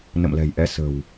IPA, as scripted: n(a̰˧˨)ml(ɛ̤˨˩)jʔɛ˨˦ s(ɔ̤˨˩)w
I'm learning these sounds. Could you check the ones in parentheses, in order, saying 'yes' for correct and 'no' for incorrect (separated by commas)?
no, yes, no